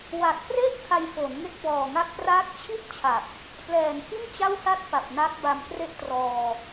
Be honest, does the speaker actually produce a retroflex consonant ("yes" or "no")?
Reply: no